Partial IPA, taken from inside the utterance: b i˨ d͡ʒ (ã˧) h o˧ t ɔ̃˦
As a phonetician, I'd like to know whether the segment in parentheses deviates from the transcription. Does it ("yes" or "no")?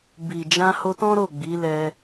no